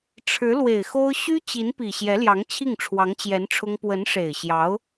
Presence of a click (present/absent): absent